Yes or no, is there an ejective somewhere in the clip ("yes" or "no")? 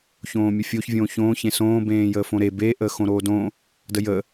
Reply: no